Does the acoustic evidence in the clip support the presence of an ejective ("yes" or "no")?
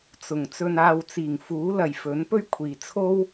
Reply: no